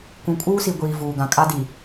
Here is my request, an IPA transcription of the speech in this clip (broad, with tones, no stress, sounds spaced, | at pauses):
k ũ˨ kʼ uː˦ s i˨ ɡʷ iː˨ v uː˨ ɡ ã˨ kʼ a˦ d i˨